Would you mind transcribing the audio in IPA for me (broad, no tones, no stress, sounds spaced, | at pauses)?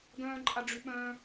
ɡ œ̃ː ǃʼ a ɖ͡ʐ y ɓ œ̃ː